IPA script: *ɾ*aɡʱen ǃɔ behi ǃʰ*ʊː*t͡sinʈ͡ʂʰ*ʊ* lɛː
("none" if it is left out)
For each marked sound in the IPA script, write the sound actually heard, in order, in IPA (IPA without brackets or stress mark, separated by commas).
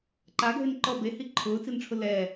ǃ, ʊː, ʊ